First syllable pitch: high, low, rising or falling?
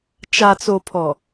low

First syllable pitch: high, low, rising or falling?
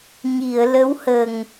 low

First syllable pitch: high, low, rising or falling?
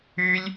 high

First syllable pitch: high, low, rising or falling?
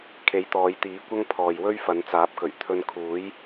rising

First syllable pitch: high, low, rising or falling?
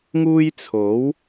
high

